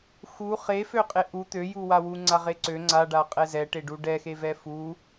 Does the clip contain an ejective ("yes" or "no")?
yes